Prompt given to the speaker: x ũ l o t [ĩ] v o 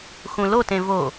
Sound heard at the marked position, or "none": ẽ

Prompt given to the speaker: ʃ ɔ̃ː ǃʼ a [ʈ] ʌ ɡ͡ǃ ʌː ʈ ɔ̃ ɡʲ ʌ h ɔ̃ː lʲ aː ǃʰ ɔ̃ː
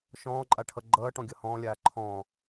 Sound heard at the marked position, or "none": ʈʰ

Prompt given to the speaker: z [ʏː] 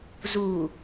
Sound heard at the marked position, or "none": uː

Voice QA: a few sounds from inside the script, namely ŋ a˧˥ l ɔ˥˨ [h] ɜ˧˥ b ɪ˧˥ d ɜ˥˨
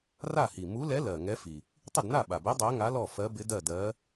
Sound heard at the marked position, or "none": f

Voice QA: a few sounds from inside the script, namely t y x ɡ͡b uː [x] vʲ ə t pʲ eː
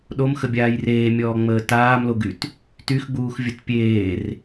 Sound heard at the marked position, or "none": x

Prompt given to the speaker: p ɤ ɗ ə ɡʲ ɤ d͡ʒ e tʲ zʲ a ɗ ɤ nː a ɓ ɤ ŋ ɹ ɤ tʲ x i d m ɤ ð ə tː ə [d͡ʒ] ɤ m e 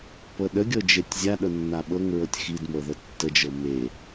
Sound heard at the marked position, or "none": d͡ʒ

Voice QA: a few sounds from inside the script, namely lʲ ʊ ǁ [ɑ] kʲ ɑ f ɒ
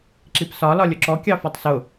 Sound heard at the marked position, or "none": ɔ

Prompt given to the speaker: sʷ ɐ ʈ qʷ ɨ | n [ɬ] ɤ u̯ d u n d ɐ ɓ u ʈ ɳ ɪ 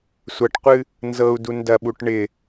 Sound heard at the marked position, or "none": z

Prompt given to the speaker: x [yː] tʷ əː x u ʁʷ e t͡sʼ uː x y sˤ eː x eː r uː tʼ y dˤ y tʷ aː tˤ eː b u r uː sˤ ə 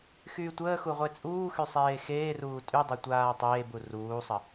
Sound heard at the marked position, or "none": yː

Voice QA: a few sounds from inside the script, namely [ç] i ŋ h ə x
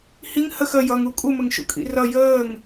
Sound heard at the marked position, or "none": h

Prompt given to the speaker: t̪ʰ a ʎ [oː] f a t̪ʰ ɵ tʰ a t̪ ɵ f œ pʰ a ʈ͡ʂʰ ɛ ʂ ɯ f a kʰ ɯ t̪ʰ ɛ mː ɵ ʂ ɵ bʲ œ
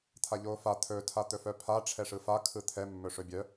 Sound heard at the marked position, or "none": oː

